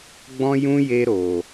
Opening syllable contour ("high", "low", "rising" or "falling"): high